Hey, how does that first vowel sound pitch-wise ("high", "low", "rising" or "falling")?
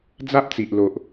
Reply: high